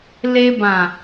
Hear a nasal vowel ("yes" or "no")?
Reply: yes